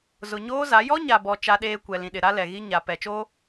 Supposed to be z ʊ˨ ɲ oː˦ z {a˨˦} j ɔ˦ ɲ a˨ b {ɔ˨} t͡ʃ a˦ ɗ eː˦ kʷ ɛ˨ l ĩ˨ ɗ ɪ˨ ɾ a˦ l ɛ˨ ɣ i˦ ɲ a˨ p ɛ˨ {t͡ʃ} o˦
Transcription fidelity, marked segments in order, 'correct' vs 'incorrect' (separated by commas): correct, correct, correct